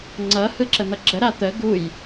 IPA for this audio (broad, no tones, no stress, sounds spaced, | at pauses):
ŋ͡ǀ ʌ h ɯ ǁ ə n̪ ʌ ɡ͡ǁ ə ɾ a t̪ ə ɡ u j